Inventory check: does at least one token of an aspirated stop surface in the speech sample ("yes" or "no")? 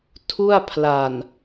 yes